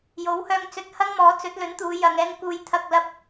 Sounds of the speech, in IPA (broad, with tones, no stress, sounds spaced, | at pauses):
j o˨˥ w h œː˧ ŋ t͡s ɵ˧ t̚ h ɐ˥ ŋ m ɔː˨˥ t͡s ɵ˨˥ t̚ l ɵ˨˥ n t̪ uː˨˧ j ɐ˨ ŋ ɛː˧ ŋ k uː˨ j t̪ʰ ɐ˨ k̚ l ɐ˧ p̚